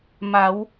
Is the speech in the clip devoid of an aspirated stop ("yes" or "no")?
yes